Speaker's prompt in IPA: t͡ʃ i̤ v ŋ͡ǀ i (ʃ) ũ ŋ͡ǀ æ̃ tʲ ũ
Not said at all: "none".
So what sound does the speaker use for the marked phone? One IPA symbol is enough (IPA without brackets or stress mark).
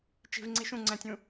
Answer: ʃ